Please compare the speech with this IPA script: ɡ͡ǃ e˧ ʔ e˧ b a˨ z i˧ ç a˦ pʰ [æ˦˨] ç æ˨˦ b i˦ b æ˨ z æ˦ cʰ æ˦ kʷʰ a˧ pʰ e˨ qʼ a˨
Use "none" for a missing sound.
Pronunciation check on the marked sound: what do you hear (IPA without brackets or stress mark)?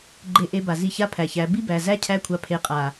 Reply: æ˨